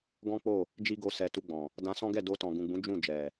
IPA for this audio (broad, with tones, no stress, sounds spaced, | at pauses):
ɡ ɔ̃˦ k͡p o˦˨ | d͡ʒ i˦ ɡ o˧ s ɛ˨ t u˧ ɡ͡b ɔ̃˨ | d ã˧ s ɔ̃˦ ɡ ɛ˦˨ d o˧ t ɔ̃˨ ɡ ũ˨ ɡ͡b ũ˨˦ d͡ʒ ũ˦˨ d͡ʒ ɛ˨